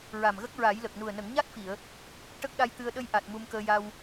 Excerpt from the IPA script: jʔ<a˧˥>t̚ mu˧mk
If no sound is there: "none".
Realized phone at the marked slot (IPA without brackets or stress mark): a˨˩